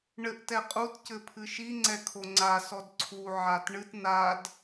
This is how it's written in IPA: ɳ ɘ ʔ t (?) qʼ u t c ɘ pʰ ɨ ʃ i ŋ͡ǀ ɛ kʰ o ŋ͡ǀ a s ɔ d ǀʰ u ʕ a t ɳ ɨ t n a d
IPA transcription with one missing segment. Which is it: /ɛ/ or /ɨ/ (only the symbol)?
ɛ